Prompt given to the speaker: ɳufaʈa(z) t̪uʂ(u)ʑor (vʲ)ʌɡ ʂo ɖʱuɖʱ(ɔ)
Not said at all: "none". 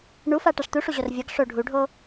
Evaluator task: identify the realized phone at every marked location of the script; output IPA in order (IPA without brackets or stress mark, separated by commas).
ʂ, u, vʲ, o